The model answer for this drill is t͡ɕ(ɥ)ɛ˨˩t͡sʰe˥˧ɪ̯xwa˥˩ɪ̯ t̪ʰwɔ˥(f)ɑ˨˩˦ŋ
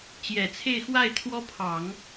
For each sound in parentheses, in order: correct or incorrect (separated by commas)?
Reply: incorrect, incorrect